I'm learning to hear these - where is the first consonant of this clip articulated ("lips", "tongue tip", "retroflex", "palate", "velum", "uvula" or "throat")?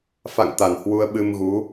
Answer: lips